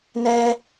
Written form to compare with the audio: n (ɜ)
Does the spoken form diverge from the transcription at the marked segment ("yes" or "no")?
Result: yes